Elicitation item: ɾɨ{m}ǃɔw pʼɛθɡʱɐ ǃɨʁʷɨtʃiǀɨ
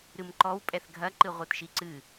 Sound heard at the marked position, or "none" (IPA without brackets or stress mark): m